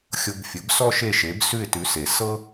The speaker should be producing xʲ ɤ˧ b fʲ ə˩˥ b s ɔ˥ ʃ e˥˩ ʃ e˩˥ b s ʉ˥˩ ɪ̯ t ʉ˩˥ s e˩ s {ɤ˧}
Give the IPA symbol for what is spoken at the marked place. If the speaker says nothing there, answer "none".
ɤ˥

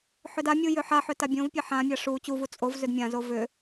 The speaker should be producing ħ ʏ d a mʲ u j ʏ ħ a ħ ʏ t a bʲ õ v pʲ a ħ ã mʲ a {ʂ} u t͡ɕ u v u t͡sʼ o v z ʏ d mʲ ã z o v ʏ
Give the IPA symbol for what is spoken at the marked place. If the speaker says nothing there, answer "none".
ʂ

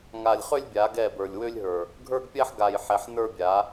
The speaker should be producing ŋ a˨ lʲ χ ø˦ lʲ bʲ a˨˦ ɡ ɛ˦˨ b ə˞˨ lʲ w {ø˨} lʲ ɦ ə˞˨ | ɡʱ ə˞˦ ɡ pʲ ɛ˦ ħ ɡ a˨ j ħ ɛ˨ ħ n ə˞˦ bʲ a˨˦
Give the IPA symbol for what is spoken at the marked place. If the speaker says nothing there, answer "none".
ø˦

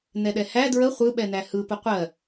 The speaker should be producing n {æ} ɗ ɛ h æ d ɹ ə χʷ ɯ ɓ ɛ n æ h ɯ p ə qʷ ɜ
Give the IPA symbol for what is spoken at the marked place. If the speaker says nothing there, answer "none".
ɛ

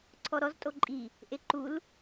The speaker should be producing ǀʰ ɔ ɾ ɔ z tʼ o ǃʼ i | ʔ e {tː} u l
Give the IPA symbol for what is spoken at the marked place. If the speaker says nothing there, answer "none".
ǃ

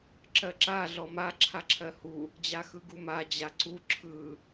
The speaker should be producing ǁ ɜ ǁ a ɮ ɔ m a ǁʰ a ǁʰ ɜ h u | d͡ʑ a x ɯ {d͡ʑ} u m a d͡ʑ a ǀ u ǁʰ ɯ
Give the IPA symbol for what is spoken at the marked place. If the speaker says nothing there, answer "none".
ɡ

